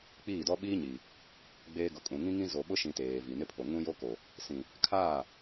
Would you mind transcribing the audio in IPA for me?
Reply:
k͡p iː˦˨ d ɔ˦ ɓ iː˦ ɲ i˨ | ɡ͡b eː˦ ɡ ʊ˨˦ kʼ ũ˨ ŋ ĩ˦ ŋ ĩ˦ z o˨ ɓ ʊ˦ ʃ ĩ˨ t eː˨ v i˨ n ɪ˦ pʰ o˨ ŋ ũ˦ j o˦ k o˨ | s ĩ˨ | kʰ aː˦˨

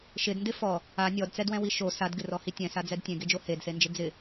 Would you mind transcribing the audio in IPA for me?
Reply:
ʃ ɪ d n d ɪ f ɔ | a nʲ ɔ d t͡s ɛ d w ɛ̃ w i ʃ o s a d ɡ ɪ r ɔ h i tʲ ɛ̃ s a d͡z ɛ d tʲ ẽ ɡ e d͡ʒ o h e d s e n d͡ʒ ɪ d͡z ɪ

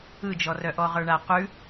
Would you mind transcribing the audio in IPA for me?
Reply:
ɯ d͡ʒ ɔ r œ ʔ ɔ ʁ ə˞ ɳ a q ʉ

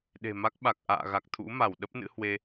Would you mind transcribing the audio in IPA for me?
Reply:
ɗ e̤˨˩ m a˦˥ k̚ ɓ a˨˩ k̚ ʔ a̰ː˧˨ ɣ a˨˩ k̚ t̪ʰ ṵ˧˥ m a˧˩ w ɗ ə˦˥ p̚ n ɨ̰˧˥ h w e˧

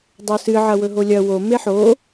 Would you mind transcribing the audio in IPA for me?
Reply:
dˤ o s ɨ ʕ ɐ w ɵ ɦ o lʲ ɐ w o m e ħ o

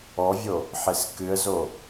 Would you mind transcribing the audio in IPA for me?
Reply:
ɔ vʲ o | ħ e s k ɨ ə̯ z o

